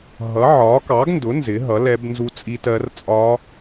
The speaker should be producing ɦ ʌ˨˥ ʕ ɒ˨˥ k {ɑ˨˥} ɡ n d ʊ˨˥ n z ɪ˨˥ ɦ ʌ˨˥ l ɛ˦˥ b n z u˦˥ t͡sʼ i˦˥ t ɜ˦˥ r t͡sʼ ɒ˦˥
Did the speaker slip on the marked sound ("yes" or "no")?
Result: no